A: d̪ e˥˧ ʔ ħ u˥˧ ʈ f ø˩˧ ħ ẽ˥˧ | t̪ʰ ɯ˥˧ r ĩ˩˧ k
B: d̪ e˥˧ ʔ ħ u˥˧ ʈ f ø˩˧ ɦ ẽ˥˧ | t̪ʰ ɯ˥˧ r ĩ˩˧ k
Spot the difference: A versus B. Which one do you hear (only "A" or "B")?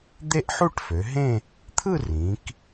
B